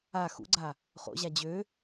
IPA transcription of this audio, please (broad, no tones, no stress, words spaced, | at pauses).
a xṵɡ͡ǀa | χo̰ʑa d͡ʑø